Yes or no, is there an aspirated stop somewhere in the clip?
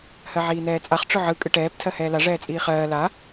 yes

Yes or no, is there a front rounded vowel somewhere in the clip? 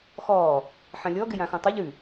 no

